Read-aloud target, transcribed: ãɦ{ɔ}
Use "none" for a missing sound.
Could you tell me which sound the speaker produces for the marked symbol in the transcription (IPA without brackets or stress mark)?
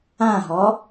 ɔ